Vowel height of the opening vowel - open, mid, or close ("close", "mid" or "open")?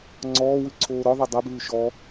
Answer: mid